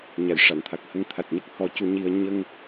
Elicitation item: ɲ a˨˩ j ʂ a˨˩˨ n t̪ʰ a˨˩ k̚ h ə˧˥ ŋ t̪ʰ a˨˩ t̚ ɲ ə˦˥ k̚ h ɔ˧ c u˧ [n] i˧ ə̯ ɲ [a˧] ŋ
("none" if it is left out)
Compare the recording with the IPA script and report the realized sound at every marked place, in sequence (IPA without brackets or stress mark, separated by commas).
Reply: ɲ, ə˧